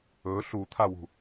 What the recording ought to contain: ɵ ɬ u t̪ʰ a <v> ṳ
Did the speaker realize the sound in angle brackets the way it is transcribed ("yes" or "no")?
no